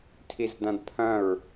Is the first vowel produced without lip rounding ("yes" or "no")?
yes